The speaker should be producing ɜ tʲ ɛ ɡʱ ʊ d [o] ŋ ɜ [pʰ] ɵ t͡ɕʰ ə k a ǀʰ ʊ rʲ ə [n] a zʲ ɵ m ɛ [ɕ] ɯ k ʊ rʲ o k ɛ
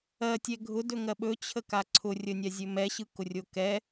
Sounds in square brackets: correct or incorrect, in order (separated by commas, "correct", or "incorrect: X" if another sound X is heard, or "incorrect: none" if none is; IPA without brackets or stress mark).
incorrect: ɵ, incorrect: ɓ, incorrect: nʲ, correct